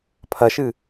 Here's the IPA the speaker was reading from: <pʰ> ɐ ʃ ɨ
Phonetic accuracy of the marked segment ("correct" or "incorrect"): correct